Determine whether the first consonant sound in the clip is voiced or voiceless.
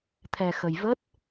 voiceless